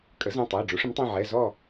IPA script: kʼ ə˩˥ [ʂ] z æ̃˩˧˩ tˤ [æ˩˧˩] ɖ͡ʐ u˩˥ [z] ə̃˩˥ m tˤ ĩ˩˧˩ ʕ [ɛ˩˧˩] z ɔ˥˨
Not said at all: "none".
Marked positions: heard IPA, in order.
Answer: none, æ˩˧˩, ʂ, ɛ˩˧˩

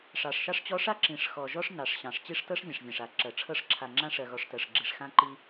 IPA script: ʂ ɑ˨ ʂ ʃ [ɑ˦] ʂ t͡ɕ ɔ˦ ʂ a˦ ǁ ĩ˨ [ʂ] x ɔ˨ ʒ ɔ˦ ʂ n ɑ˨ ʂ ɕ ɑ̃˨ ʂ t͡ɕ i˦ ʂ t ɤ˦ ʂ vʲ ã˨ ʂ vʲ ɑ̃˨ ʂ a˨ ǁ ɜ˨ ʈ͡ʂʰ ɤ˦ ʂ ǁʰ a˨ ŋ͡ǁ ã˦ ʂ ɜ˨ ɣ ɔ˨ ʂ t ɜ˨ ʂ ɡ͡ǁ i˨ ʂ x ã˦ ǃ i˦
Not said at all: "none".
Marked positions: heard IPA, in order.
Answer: ɑ˦, ʂ

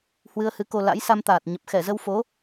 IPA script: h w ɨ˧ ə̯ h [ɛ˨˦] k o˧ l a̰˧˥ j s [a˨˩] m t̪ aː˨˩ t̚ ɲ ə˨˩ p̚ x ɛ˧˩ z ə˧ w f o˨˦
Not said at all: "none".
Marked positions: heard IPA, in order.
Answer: ɨ˨˦, a˧

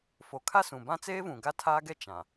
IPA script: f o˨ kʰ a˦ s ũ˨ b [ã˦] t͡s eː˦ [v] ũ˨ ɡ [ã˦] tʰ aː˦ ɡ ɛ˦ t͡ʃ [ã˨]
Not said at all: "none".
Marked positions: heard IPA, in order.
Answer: ã˦, v, a˦, ã˨

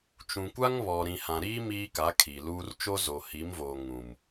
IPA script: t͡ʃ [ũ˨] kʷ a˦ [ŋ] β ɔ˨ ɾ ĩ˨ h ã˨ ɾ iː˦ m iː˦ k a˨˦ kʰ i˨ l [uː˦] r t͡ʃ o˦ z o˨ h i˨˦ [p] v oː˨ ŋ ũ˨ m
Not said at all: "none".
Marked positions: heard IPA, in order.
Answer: ũ˨, ŋ, uː˦, m

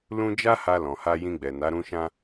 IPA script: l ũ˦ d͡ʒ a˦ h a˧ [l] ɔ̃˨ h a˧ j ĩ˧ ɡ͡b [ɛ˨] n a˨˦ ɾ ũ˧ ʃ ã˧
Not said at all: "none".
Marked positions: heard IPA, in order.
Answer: l, ɛ˨

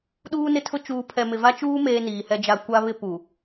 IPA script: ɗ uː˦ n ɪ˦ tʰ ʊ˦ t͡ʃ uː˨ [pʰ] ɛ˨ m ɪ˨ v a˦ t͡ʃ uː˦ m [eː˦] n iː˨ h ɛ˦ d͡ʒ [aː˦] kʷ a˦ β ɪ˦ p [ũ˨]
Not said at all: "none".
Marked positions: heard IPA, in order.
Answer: pʰ, eː˦, a˦, u˨

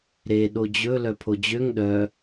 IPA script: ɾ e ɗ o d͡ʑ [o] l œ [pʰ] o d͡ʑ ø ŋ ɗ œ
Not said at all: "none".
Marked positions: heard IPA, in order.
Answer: ɵ, pʰ

